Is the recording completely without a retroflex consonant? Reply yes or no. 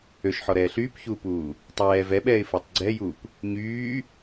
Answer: yes